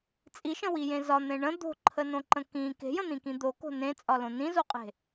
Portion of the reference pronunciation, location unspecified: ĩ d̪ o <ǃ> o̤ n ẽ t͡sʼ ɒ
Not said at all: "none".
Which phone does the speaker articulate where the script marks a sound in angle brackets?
k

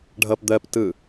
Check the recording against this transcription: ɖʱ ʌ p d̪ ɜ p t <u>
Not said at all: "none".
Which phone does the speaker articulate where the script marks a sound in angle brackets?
ɯ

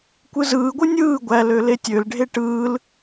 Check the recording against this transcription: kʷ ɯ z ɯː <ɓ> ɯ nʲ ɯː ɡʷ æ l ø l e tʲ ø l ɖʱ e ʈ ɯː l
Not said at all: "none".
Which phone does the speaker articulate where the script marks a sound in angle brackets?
ɡʷ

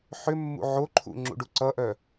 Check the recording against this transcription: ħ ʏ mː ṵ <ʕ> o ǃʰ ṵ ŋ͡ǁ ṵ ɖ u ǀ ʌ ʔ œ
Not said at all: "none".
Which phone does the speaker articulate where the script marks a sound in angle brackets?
ʕ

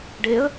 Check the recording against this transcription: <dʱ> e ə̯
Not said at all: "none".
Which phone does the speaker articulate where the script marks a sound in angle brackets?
ɖ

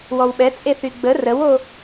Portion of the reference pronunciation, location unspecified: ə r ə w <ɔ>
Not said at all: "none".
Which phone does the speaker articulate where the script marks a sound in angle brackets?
o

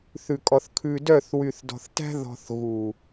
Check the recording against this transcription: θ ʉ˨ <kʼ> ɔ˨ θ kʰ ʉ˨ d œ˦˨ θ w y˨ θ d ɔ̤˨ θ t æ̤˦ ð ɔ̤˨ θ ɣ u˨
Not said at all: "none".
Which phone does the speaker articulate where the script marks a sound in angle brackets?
kʼ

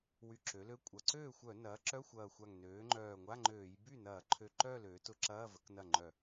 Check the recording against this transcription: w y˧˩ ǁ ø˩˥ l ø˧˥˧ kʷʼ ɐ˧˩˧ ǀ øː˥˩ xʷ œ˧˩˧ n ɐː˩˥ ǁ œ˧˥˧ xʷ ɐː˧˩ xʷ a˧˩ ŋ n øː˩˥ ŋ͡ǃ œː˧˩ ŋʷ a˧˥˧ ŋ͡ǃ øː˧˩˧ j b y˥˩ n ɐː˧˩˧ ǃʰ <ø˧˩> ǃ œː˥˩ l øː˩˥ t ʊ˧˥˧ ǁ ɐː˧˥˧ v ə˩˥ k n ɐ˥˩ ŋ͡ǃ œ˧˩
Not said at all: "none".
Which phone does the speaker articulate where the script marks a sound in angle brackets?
ø˧˩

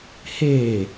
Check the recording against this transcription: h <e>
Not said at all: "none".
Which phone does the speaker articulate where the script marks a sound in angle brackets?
eː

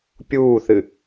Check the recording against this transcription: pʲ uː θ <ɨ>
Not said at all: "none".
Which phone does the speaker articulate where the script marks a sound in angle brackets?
ɨ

